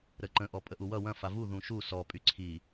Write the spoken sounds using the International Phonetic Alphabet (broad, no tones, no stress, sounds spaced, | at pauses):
ɾ ə ǃ ə̃ ʔ ɔ pʼ ə ʔ u w ʌ w ɐ̃ f a v u ð ũ ʃ u s ɔ pʼ y ǀʰ i